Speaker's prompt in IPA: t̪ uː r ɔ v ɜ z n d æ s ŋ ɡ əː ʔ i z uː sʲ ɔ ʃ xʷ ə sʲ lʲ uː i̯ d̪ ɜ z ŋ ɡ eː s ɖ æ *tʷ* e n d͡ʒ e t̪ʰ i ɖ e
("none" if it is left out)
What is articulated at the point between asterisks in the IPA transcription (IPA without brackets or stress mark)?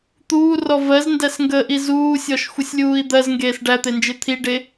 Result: t̪